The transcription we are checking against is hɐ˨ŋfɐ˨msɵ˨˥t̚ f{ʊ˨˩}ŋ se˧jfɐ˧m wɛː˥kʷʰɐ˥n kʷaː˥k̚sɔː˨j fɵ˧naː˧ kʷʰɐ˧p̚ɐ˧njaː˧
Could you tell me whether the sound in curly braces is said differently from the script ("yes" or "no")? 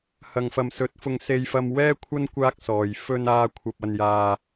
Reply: yes